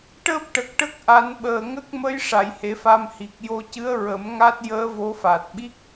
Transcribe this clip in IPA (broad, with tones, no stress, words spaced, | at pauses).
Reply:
ʈəː˦˥p̚ʈə˨˩k̚ ʈə˦˥k̚ʔa˨˩˦nɓəː˨˩ ŋə˦˥k̚mə˧˥j ʂa˨˩˨jhe˨˩˦fa˧mhi˨˩k̚ jo˧cɨ˧˥ə̯ɹə˨˩˦m ŋa˦˥t̚jəː˧˥ vo˧˥fa˨˩t̚ ɓi˦˥k̚